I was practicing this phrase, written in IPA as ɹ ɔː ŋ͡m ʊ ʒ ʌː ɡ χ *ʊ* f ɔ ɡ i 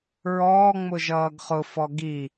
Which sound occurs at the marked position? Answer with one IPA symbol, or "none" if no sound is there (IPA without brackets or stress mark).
ʊ